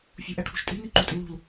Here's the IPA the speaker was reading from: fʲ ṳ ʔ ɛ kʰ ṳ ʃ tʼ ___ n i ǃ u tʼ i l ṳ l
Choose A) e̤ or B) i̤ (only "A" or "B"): B